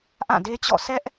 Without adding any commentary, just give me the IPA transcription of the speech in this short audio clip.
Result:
ʔã˦˨de˦t͡ɕɔ̰˦˨ sɛ˦ʔ

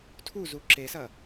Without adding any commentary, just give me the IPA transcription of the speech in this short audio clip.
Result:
tʰuzu ǁesɐ

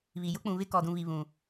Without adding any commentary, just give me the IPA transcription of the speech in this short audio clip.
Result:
βi˨ jʊ˦k͡pũ˨βɪ˦ kɔ˨dũ˨βi˨ βũ˨

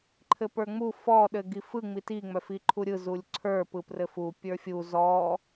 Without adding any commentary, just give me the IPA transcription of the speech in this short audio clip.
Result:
ǃʰɘpə˞ŋ͡mu fɔ ɗɘɡifɯ ŋ͡miti ŋ͡mœfiǃʰuɾʲɯ zulʲǀʰə˞ pɯprɘfu pʲə˞fʲu zɔ

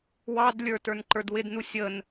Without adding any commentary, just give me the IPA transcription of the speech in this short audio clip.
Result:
wɑdlʲə˞ tə˞nǃə˞dwɪdnu sʲən

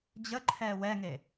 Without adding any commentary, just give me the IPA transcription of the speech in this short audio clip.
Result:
d͡ʑə ǃʰɛːwɛŋe

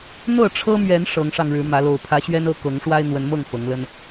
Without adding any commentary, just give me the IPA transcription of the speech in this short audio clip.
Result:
n̪ɤ˥˨ʈ͡ʂʰɤ˦mɥɛ˨˦n ʂɤ˨˦ŋʂɑ˧ŋɻɻ̩˨˦mä˨˦ lo˨˩ʊ̯pʰä˨˦ɕɥɛ˦nɤ˥˨ kɤ˨˦ŋʂwa˦ɪ̯n̪wə˨˦nmɤ˥˨ŋ fɤ˨˦ŋlə˦n

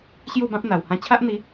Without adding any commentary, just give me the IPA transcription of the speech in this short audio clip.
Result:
ɕju˥˧bã˦p̚n̪a˨˩w hã˧t͡ɕʰa˦ʔn̪i˨˦

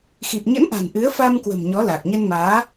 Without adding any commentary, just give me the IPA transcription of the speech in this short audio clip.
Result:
xi˨˩p̚ɲə̰˧˥nʔa̤˨˩n ʔɨ˨˦ə̯fa˧mkwə̤˨˩m ɲɔ˨˦la˨˩k̚ɲə˧nmaː˨˦

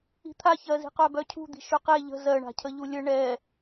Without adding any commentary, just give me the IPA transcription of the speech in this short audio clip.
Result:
i̤t̪ʰaçɜzi̤ qœbœcʰṳd̪i̤ ʃøqe ʎə̤ zɜɳa̤cʰəʎu lʲə ɳɛ

